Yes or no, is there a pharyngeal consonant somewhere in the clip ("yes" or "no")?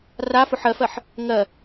yes